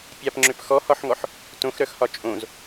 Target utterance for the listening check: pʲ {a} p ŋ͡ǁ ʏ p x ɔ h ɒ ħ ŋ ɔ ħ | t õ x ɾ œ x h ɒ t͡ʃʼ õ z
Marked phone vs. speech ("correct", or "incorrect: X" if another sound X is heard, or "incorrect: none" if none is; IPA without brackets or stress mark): correct